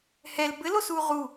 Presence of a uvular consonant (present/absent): present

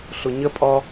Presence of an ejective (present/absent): present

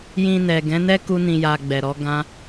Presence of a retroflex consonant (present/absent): absent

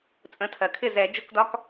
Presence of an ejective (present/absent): present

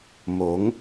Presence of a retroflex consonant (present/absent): absent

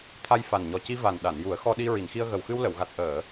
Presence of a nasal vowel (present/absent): absent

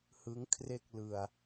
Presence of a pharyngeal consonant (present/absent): absent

